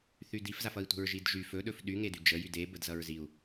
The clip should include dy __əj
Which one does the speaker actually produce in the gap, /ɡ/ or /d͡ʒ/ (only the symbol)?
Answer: d͡ʒ